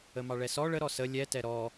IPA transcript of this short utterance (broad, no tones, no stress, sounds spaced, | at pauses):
ə m ɑ ɭ ɛ s ɔ ɭ ə ɾ ɔ s ə lʲ ɛ t ɛ ɾ ɔ